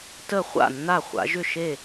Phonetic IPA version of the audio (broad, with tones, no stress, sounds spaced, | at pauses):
t ə˥˨ χʷ a̰˥˨ nː a˥˨ χʷ a̰˨˦ ʒ ʏ˥˨ ʃ e˥˨